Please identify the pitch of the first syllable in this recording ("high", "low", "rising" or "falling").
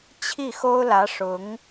falling